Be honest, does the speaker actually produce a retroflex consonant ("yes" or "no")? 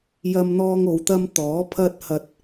no